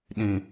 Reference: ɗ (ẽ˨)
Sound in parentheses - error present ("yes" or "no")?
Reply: yes